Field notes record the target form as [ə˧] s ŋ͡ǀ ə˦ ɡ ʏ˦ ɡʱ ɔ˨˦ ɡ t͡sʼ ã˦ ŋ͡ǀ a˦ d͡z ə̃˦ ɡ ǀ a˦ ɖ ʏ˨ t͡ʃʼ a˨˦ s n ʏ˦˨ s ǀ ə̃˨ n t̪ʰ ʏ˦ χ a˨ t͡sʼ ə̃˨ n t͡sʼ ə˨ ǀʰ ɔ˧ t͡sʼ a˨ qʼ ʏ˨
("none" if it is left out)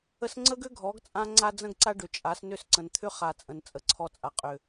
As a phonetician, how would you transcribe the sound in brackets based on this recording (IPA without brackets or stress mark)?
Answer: ə˧